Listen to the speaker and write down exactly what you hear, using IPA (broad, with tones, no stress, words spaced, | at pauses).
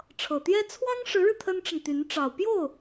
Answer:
ʈ͡ʂʰɤ˨˩t̪jɛ˥ t͡sʰwɑ˥ŋʂɻ̩˧˥ɻɻ̩˧ t̪ʰə˥nʈ͡ʂə˨nt̪y˧˥n ʈ͡ʂɑ˨˩ʊ̯pjo˥˩ʊ̯